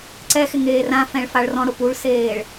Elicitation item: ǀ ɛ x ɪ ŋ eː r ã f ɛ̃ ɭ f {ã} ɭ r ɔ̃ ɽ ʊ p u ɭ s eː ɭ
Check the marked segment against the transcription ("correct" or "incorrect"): incorrect